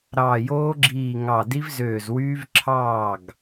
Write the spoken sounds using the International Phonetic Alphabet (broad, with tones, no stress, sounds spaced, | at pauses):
ɾ ɑː˧˩ j oː˦˥ ɡ͡ǁ iː˧˩ ŋ ɑ˧˩ d i˦˥ v z øː˧˩ z w yː˦˥ v ǁʰ ɑː˥˩ ɡ